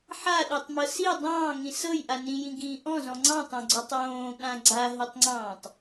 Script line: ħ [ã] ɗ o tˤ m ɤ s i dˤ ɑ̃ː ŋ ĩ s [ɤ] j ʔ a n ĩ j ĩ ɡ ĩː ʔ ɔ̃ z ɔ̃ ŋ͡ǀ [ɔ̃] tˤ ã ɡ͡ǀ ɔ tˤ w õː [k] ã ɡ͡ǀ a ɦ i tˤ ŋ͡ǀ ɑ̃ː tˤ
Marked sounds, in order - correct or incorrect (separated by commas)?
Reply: incorrect, correct, incorrect, incorrect